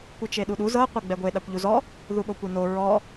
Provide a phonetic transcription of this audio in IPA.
kʷ ɯ t͡ʃ e ɗ u ɗ u z ɤ qʷ ɤ ɡ͡b ɛ ɡʷ e ɗ a kʷ ʎ u z ɔ | ð u ɓ o kʷ e n o ɹ ɔ

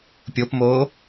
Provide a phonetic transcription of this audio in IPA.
pʲ o p m oː

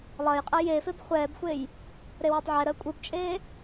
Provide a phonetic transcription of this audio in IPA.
lˠ ɐ j qʼ ɐ j e f e b χʷ ɛː b xʷ eː j | ɾ e w ɛ tˤ ʕ ɛ ɾ əː kʷʼ ɯ b t͡ʃʼ eː

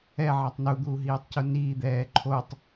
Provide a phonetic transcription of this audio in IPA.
ɛ ʕ a tˤ n u d̪ uː ɦ iː tˤ c u n iː d̪ ɛː ǃʰ o tˤ

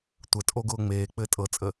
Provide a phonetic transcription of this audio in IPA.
tʷ ə tʼ o ɡ ʊː ŋ͡m eː k͡p ɘː tʼ ɤ t͡sʼ ə

